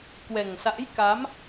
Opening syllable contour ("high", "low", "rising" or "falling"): low